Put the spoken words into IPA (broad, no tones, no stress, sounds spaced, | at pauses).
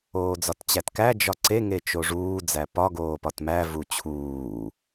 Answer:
oː d͡z ɒ t t͡ɕ æ t k æ d͡ʒ ɒ ǀ e ŋ e t͡ʃ o ʐ uː d͡z æ p ɒ ɡ oː p ɒ t m æ v u t͡ɕʰ uː